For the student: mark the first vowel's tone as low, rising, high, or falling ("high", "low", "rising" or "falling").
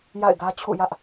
falling